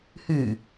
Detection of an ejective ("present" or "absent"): absent